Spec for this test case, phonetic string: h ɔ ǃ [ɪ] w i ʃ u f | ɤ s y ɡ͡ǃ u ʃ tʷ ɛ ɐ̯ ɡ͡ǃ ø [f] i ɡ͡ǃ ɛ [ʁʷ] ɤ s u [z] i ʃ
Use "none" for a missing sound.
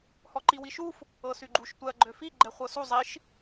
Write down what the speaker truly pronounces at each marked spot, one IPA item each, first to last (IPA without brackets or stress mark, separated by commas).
i, f, χʷ, zˤ